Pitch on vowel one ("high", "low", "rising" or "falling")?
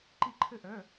falling